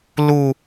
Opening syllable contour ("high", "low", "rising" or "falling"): high